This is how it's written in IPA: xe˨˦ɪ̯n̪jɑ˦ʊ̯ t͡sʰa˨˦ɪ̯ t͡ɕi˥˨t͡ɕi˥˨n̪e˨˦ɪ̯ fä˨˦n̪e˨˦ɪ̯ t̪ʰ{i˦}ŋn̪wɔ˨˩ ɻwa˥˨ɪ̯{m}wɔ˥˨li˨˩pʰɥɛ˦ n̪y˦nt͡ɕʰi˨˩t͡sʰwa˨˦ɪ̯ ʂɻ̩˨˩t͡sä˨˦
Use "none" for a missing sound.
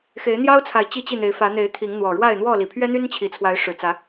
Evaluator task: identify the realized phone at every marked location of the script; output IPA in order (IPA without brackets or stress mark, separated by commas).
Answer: i˨˦, n̪